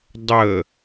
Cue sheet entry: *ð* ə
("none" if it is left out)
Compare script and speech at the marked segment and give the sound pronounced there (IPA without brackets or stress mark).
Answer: dˤ